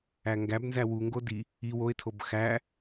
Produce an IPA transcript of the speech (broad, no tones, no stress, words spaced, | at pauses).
æŋɡæbnzæ wuŋɡo di | i woɪ̯tʰob xæ